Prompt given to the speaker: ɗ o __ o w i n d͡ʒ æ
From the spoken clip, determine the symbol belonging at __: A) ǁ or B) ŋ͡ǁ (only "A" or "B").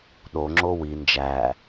B